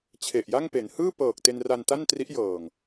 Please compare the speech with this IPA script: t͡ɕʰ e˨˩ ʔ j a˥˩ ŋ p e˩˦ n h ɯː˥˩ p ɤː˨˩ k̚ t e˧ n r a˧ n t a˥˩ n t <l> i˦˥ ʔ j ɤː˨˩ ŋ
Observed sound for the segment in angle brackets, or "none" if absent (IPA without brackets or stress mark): r